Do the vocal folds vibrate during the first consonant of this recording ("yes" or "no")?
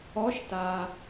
no